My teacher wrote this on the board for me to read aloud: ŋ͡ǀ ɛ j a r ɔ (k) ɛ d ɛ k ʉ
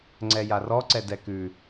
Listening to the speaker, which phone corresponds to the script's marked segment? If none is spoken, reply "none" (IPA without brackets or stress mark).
ǀ